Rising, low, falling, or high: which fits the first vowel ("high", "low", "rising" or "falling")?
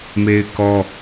high